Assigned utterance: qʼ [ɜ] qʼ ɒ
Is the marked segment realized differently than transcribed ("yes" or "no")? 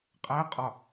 yes